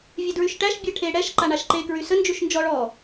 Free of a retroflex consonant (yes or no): no